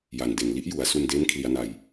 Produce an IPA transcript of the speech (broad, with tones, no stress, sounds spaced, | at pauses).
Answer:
j a˨˩ n d e˨˩ n l i˦˥ ʔ j u˩˦ a̯ s u˧ n d eː˦˥ n kʰ l i˩˦ a̯ n a˨˩ j